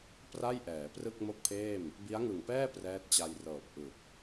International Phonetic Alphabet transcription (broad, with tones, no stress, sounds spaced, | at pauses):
p r a˥˩ j ʔ ɛː˩˦ p r ɯ˥˩ k̚ m o˥˩ k̚ pʰ eː˥˩ m | b i˦˥ a̯ ŋ ɯ˨˩ ŋ p ɛː˥˩ p r ɛː˦˥ t̚ t͡ɕ a˧ j r ɤː˨˩ p̚ ʔ ɯ˨˩ k̚